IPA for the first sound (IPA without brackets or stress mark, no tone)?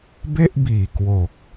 b